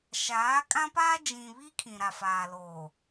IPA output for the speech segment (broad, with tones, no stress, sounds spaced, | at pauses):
ʃ aː˨˦ kʼ ã˦ p aː˦ d͡ʒ ĩ˨ β i˦ kʰ ĩ˨ ɾ a˨ f aː˨ l oː˨